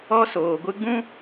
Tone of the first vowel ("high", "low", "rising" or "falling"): high